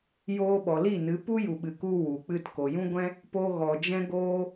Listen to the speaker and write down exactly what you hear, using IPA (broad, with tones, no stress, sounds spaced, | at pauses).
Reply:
j oː˧ ɓ ɔ˨ l i˦˨ n ɨ˨˦ p u˦ j u˨ ɓ ɨ˨ k u˧ w u˨ k͡p ɨ˧ t k o˨ j ũ˦ ɡʷ ɛ̃˦ | p o˧ ɣ ɔ˨ d͡ʒ ɛ̃˦ ɡ oː˦